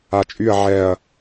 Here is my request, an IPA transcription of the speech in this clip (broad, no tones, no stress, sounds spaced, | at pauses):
a t͡ʃʼ y ɐ̯ ʕ ɛ ɐ̯